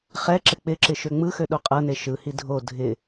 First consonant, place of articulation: uvular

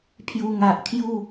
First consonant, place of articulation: labial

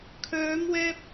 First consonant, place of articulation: velar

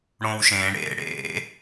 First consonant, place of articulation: retroflex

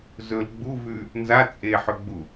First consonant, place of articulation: alveolar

